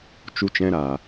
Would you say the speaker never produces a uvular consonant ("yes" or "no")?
yes